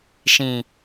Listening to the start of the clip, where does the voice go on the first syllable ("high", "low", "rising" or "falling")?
low